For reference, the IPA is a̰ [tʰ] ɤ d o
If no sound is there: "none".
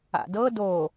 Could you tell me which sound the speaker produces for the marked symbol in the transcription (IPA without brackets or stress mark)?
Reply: d